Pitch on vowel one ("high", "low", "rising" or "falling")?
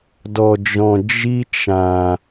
low